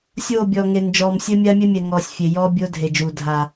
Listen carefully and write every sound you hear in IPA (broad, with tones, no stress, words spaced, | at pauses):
sʲoː˦˨bʲɔ˨ŋe˨n d͡ʒɔː˨msʲɘ˦mʲa˦mʲɛ˦ mʲɛ˨ŋɔː˨sʲ fʲe˨jɔː˦ bʲoː˦dʱe˨d͡ʒuː˨ dʱa˨